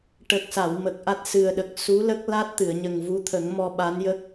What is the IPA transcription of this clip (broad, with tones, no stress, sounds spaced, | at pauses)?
ʈ ə˨˩ k̚ s a˨˩˨ w m ə˨˩ k̚ ʔ a˦˥ t̚ s ɨ˨˩ ə̯ ɗ ə˨˩ k̚ s u˧˥ l ə˦˥ k̚ l a˦˥ t̚ t̪ ɨ˨˩˨ ə̯ ɲ ə˨˩ ŋ v u˧˥ t̪ʰ ə˨˩˦ ŋ m ɔ˧ ɓ a˧˥ n j ə˦˥ k̚